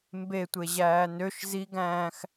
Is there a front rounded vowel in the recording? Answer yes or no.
yes